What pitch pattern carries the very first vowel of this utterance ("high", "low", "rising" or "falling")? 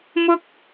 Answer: high